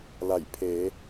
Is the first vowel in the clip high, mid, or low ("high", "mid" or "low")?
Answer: low